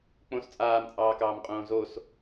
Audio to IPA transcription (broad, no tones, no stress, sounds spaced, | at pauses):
k͡p õ s t͡sʼ aː m t͡sʼ ɑː k ɑː m qʼ õː z o s